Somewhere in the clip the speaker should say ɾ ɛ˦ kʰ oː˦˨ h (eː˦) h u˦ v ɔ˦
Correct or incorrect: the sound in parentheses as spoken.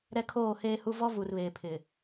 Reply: correct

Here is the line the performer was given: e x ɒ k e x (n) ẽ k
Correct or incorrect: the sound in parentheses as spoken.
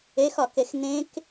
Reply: correct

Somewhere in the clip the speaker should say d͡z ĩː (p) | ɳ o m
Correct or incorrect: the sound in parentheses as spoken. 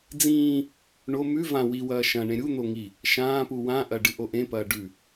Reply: incorrect: none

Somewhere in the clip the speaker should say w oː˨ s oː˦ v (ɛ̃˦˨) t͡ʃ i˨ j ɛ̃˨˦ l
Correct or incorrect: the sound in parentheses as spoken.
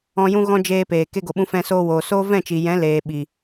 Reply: correct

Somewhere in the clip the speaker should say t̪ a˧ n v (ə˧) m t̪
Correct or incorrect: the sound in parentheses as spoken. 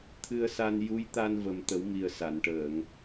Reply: incorrect: ə˨˩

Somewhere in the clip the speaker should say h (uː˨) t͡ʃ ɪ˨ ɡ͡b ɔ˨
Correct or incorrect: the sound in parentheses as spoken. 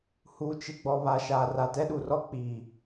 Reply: correct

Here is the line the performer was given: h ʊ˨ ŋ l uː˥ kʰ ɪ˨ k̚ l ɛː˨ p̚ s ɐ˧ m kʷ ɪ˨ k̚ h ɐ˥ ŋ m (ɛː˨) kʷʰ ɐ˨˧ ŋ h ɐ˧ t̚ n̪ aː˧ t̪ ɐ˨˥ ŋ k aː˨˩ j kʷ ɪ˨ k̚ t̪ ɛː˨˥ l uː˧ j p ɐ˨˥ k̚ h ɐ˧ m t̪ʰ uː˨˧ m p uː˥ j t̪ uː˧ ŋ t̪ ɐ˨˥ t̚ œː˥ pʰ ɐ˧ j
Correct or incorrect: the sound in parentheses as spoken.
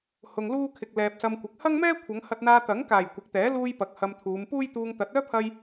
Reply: incorrect: ɛː˥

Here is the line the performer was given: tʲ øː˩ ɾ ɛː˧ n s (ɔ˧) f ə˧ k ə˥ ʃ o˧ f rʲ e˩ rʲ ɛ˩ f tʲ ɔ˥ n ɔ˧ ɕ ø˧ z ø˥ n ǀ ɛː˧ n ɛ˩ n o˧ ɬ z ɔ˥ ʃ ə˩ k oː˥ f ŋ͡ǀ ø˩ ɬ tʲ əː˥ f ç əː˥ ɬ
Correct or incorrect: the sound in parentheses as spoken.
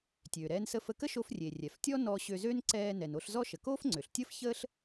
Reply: incorrect: ə˧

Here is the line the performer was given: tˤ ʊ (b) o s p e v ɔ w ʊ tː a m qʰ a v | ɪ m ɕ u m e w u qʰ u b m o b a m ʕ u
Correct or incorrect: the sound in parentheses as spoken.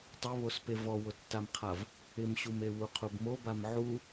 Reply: incorrect: β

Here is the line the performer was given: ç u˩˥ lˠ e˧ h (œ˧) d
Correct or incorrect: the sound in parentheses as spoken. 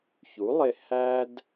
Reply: incorrect: æ˧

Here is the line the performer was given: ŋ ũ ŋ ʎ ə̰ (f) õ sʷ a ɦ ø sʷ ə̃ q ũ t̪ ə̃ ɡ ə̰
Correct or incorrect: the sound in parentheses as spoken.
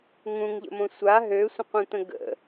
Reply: incorrect: m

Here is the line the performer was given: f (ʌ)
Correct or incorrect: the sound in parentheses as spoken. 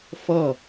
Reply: correct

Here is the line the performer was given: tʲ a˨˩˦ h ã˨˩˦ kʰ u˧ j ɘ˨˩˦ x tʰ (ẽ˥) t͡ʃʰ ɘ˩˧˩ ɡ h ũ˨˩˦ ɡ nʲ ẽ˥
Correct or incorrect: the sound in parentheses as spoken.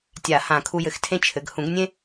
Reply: correct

